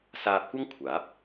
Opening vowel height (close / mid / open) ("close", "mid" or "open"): open